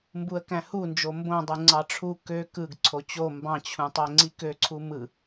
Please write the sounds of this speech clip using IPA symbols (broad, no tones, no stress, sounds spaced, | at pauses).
m b u ə̯ k æ̃ h u n d͡ʒ o m b õ dˤ ɯ ŋ͡ǀ ɑ ʈ͡ʂʰ u k ø k ɯ ɡ ǀʰ o t͡ɕ o m b ɑ̃ t͡ɕʰ ũ tˤ æ ŋ͡ǀ i k ø ǀʰ u m ɯ